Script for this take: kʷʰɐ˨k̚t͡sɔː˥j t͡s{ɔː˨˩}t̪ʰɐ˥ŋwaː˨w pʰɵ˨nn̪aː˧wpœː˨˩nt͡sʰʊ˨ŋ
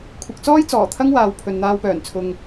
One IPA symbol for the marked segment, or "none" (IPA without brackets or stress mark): ɔː˨˩